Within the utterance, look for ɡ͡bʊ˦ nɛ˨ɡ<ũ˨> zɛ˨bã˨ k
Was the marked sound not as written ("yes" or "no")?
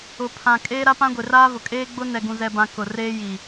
no